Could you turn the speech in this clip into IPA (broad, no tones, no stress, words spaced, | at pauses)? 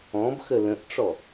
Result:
ɔ̃bxə lə̃ʔʈ͡ʂɔ